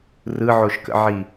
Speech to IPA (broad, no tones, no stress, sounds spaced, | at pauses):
r ɯ ʕ o ʃ k ə̰ ʕ i